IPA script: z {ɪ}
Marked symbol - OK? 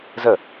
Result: no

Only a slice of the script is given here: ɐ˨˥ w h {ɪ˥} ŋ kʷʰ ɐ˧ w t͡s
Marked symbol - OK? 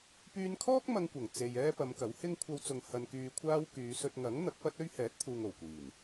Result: yes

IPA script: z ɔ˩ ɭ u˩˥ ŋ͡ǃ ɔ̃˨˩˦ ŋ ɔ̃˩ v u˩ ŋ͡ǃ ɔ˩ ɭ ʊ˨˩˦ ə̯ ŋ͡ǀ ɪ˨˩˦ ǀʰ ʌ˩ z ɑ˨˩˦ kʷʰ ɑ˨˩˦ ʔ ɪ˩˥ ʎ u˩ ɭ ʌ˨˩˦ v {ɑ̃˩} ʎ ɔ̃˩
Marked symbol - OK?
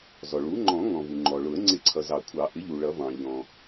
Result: yes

